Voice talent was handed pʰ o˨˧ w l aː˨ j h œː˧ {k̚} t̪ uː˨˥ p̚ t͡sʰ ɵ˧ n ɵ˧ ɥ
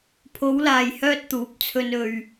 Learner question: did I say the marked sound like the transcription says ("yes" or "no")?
no